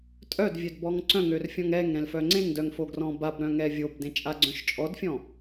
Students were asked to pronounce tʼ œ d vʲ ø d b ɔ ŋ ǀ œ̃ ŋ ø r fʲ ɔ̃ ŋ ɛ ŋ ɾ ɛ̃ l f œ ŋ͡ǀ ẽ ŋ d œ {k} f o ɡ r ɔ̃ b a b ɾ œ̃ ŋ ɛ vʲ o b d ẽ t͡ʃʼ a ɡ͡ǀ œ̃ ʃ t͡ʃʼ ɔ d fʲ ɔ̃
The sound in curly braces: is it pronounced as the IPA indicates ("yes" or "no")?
no